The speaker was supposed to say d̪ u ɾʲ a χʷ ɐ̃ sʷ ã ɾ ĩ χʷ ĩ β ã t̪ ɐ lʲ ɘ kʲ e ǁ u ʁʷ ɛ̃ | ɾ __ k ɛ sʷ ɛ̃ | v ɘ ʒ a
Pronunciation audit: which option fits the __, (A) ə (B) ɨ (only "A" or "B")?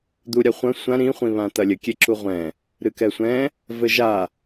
B